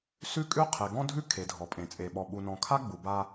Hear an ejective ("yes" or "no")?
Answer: yes